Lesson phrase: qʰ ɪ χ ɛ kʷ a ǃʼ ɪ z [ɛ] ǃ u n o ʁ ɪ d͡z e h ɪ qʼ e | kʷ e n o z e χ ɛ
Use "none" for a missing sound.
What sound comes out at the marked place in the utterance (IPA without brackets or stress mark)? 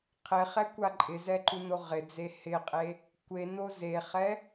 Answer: ɛ